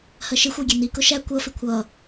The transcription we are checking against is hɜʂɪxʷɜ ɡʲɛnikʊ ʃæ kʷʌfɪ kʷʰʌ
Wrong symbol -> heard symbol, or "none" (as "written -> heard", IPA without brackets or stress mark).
ʂ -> ʃ